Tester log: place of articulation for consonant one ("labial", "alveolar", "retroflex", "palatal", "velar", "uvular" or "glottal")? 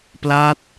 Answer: labial